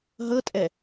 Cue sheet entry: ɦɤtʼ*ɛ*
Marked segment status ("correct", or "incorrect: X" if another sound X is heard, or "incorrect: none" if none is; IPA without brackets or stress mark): correct